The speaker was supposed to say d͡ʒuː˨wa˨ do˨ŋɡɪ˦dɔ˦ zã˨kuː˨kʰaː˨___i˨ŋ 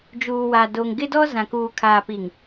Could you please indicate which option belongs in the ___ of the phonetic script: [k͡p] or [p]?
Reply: p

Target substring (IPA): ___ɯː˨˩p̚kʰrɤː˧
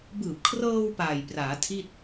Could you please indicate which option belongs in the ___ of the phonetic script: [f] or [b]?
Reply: b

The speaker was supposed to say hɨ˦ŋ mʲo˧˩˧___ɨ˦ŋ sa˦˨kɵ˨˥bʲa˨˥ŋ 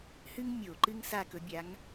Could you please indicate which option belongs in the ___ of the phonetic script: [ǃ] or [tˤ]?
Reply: ǃ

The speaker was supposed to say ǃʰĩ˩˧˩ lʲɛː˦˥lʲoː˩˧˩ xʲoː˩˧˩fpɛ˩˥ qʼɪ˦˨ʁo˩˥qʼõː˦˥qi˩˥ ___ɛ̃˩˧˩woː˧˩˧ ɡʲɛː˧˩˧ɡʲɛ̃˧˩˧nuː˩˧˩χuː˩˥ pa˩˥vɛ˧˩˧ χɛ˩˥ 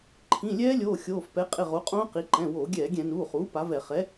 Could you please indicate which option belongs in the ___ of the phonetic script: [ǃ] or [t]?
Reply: ǃ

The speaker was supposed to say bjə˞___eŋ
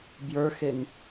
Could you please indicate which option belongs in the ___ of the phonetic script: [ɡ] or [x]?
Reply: x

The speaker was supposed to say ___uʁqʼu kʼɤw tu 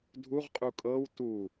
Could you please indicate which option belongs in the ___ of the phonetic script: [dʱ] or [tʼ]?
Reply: dʱ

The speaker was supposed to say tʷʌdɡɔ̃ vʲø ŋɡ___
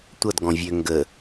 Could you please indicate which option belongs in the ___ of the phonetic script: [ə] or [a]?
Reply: ə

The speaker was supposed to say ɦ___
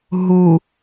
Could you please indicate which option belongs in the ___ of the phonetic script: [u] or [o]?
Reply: u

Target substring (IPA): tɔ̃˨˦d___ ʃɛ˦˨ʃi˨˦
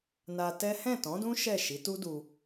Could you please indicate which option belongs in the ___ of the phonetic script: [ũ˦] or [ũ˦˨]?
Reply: ũ˦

